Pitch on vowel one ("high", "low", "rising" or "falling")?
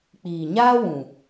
low